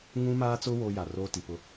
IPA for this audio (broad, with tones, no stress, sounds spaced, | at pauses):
ŋ ũ˦ m aː˦ t͡s ʊ˦ w o˦ j a˨ r oː˦ t i˨ p ʊ˦